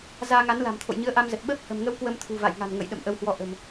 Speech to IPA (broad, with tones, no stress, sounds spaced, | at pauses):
z aː˧ ŋ a˨˦ n l a̤˨˩ m t̪ʰ o̰˧˨ j ɲ ɨ˨˦ ə̯ ʔ a˧ m z ə˨˩ t̚ ɓ əː˦˥ p̚ h ə̤˨˩ m ŋ ə˧ w k w ə˧ m t̪ʰ ṳ˨˩ v a̰˧˨ j ŋ a̤˨˩ n ŋ ə̰˧˨ j ɗ ə̰˧˨ m ʔ ə˨˦ w h w ɔ˧ ʔ ə̤˨˩ m